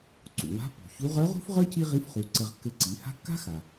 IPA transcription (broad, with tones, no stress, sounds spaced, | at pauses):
ǀ ṵ˩ w a̤˧˥ pː ṳ˩ ç u˧˥ ʁ ə˞˧˥ ʁ ṳ˥ f ʁ ə˞˥ c i˥ ʁ i˧˥ f χ u˩˧ ǀ ɘ˧ ʁ kː ɘ˧ ǀ i˩˧ h a̤˥ kː a̤˥ x a˩